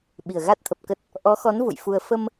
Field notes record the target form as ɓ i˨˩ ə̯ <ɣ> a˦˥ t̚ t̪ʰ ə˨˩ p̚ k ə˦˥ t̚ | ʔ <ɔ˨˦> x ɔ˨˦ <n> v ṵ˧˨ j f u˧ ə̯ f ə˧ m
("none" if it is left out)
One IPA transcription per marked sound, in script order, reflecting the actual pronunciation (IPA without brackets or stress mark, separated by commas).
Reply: ɣ, ɔ˨˦, n